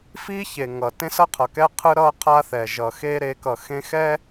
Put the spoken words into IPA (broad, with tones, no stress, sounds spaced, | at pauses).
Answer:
f i˦ ç e˨ ŋ ʌ˨ t ẽ˦ s ʌ˦ qʰ ʌ˨ k ɛ˦ qʰ ɯ˦ ɾ ʌ˦ qʰ a˦ θ ɛ˨ ʒ ʌ˨ x e˦ ɾ e˨˦ k ʌ˨ x ẽ˦ x ɛ˦